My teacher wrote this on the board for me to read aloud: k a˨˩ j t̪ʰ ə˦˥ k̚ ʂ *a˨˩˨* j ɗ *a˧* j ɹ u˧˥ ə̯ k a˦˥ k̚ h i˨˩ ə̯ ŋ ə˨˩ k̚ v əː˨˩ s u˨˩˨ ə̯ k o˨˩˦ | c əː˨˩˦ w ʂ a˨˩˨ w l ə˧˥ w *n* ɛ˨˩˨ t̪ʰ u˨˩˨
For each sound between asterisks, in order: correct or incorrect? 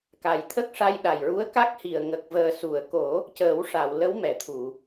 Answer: incorrect: a˧, incorrect: a˨˩, incorrect: m

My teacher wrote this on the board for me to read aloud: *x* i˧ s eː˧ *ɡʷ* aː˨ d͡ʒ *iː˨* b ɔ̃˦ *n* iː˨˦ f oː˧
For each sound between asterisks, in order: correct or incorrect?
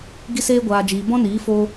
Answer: incorrect: ɡ, correct, correct, correct

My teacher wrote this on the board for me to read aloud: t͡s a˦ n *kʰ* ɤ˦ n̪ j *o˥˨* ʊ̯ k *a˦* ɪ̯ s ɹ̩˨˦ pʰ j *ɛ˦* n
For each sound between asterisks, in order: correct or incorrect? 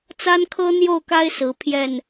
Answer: correct, correct, correct, incorrect: ɛ˥˨

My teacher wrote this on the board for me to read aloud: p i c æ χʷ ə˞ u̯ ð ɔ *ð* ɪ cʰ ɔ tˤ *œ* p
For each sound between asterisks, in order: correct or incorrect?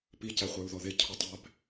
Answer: correct, incorrect: æ

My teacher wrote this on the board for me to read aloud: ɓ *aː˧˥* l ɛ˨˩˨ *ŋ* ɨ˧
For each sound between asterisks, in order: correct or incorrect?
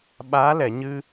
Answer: correct, incorrect: ɲ

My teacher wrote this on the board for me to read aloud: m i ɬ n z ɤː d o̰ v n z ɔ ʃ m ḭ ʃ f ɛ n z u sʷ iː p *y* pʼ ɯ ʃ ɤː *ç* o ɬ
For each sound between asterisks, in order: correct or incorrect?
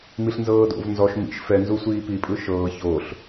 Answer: incorrect: i, correct

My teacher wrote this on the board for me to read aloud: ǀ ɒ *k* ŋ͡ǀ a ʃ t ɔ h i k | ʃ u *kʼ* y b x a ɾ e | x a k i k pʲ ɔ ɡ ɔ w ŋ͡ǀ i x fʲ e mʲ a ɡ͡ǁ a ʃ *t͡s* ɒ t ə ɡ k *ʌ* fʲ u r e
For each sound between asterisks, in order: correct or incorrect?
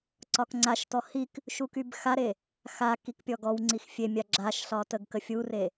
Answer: correct, incorrect: k, incorrect: ɬ, incorrect: ə

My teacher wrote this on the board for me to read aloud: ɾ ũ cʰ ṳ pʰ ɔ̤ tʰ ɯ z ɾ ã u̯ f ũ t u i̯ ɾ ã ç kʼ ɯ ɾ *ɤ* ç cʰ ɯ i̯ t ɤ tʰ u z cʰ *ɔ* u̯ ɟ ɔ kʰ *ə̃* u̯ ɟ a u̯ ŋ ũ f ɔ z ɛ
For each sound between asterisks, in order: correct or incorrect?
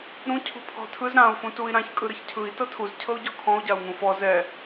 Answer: correct, incorrect: ɤ, incorrect: ɔ̃

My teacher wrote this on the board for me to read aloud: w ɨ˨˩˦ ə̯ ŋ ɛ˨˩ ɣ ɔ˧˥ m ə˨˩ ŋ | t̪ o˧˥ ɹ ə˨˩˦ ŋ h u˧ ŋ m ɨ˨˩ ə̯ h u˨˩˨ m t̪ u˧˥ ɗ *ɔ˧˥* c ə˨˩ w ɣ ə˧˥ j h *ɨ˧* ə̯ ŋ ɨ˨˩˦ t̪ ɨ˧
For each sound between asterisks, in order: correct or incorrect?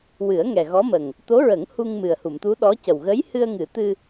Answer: correct, correct

